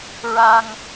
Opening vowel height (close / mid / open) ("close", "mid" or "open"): open